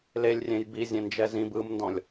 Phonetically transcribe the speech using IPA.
l e lʲ rʲ ẽ j b i zʲ ẽ n d͡ʒ ɛ z ĩ b ɯ m n d ɔ̃ lʲ

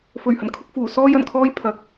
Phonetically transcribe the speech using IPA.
f ɵ˨˩ ɥ h ɐ˨˩ n kʰ ʊ˧ k̚ f uː˨˩ s ɔː˥ j ɐ˨˩ n kʰ ɔː˥ j pʰ ɐ˨˥ k̚

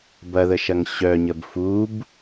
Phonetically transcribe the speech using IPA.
b ɐ ð ə ʃ ɐ ŋ ɕ œ ɲ ə b f u b

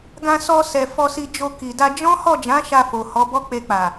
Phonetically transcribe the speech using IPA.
ɡ ã˧ s ɔ˧ s ɛ˨ f ɔ˧ s i˧ d͡ʒ o˧ k i˨ d a˧ d͡ʒ ɔ̃˦ h ɔ˦˨ d͡ʒ ã˨˦ ʃ a˧ f o˨ h ɔ˨˦ b ɔ˦ k͡p e˧ k͡p a˨

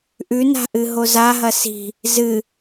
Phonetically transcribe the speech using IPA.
ʔ ʉ n a̤ ʔ ɨ ɦ o z a ɦ ɐ s i̤ | z ɨ

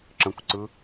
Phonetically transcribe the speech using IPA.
ǁ ə̃ kʷ ǀ ɯ

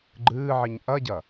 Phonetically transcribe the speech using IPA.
ɡ͡ǃ ɨː ʕ i ɲ ʔ ɐ ɟ ɐ

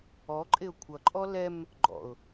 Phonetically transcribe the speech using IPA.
ɔ ǃʼ ɪ ʊ̯ kʷʰ ʌ ǃʼ ɔ l ɛ m | ɡ͡ǃ ɔ̰ ʊ̯

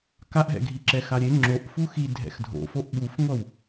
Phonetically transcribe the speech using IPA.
k a ʔ ɦ ɛ̰ ɡʱ i ǁ ɛ x a ɾʲ e ŋ͡ǁ o ʔ f u x i dʱ ɛ̰ x dʱ o̰ f o ʔ ɓ u f ŋʷ ʌ w

